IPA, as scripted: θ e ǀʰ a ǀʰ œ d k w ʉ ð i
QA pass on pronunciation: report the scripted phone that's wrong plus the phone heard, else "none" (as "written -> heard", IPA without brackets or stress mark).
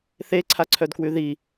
none